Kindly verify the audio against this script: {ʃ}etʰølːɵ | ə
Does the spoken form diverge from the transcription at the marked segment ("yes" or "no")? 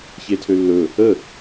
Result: yes